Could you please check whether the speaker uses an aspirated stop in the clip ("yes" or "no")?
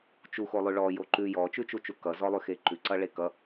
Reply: no